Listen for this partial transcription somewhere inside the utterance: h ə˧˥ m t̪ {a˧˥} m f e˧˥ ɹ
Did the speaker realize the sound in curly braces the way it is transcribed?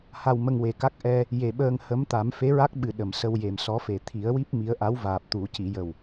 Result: no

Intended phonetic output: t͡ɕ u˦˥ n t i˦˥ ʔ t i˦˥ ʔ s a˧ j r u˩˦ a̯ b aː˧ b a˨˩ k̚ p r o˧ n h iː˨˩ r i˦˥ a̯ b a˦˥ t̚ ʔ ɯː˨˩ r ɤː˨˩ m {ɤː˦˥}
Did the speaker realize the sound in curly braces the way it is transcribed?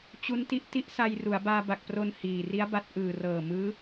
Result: no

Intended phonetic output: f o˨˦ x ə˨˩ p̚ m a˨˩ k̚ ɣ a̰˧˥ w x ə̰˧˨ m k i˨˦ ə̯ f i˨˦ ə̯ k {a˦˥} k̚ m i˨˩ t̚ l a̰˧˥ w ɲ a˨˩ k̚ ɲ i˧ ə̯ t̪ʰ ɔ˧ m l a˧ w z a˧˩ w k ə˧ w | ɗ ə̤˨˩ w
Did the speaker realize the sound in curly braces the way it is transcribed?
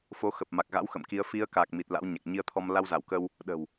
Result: no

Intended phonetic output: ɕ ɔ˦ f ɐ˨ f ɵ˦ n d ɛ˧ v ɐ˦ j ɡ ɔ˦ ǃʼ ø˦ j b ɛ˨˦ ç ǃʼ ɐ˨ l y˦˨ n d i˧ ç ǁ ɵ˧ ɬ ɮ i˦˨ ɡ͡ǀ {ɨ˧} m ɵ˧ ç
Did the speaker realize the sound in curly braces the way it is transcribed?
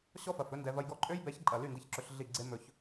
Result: no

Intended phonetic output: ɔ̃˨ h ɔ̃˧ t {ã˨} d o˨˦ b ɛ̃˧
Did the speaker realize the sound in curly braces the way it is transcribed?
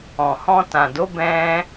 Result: yes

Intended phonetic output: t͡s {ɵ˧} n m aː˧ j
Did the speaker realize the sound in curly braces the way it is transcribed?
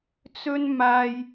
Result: no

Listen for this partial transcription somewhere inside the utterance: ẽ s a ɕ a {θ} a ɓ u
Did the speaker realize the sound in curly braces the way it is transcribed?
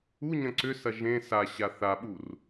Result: yes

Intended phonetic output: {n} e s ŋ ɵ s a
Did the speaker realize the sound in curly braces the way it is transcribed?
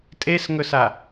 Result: no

